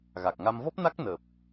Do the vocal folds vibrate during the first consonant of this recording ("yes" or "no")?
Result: yes